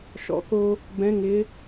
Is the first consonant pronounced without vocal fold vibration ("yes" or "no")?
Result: yes